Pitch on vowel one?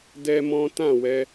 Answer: high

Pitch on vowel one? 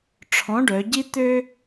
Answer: rising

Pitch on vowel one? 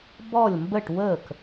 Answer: falling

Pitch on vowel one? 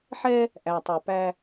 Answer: high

